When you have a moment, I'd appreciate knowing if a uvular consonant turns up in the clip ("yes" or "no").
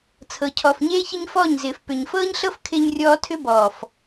no